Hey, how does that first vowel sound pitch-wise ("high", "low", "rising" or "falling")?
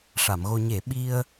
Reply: low